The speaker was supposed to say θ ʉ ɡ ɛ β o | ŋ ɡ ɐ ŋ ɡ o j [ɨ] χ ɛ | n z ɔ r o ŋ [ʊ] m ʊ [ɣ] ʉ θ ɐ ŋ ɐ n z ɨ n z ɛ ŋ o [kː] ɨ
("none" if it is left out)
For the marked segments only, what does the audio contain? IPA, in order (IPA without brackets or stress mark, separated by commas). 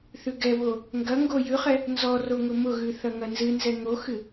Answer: ʉ, ʊ, ɣ, x